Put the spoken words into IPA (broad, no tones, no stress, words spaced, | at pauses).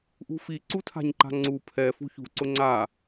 ʔṳfi ǀutʰa̤ɲǃa̤ŋ͡ǀu pʰɛ fṳçṳ ǀʊŋ͡ǀa